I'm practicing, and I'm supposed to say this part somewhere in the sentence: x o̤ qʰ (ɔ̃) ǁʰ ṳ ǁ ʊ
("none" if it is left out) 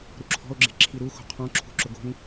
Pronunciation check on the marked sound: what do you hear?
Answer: ɔ̃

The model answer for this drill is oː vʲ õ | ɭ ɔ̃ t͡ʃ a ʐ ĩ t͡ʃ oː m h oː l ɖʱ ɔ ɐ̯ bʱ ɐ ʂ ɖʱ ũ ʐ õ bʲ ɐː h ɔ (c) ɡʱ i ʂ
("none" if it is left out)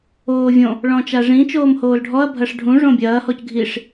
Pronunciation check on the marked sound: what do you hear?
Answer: c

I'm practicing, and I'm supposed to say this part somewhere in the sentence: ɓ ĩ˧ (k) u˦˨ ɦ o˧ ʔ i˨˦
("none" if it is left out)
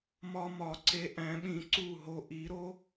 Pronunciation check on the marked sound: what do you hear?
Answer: ǀ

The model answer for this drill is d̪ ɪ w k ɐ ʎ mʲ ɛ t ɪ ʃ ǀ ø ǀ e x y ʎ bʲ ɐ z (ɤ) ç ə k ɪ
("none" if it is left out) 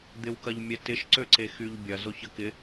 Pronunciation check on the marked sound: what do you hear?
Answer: o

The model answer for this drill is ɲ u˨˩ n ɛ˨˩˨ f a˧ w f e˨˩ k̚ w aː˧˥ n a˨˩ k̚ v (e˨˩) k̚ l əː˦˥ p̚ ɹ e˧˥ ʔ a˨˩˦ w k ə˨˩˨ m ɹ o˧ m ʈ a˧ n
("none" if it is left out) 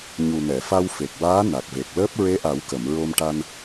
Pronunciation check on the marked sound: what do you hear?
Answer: e˨˩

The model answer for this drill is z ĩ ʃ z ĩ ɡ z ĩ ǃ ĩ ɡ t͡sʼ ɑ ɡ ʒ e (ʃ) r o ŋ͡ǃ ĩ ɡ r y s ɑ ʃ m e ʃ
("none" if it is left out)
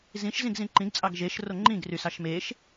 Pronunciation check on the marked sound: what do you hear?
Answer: ʃ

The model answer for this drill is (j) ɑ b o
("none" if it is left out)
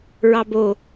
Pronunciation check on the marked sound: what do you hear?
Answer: ɹ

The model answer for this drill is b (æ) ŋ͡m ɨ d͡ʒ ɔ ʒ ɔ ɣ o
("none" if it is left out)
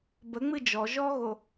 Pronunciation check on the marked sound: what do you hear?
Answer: ə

